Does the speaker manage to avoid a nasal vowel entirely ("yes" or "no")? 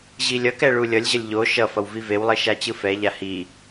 yes